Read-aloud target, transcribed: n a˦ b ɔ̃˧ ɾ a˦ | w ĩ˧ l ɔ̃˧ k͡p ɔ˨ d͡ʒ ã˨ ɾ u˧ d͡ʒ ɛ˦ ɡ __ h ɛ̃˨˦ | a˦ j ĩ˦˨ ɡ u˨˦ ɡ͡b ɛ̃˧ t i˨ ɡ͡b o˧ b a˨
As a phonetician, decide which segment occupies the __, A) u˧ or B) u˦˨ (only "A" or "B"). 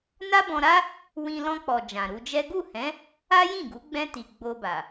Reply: B